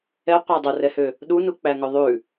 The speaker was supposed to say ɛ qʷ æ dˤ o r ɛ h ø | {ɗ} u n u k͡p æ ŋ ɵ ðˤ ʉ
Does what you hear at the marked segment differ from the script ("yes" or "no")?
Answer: no